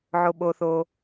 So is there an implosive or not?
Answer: yes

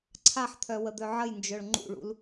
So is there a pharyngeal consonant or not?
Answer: yes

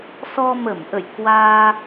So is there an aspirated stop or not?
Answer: no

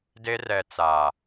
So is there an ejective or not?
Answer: no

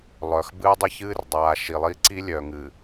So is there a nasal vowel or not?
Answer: no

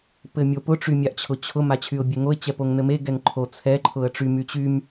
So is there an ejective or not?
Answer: no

